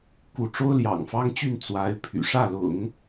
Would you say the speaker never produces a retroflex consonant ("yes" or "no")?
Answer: no